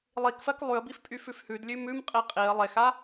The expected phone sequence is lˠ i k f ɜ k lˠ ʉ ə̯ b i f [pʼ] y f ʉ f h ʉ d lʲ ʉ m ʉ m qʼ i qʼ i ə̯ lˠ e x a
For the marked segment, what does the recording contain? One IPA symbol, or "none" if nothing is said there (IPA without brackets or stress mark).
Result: pʼ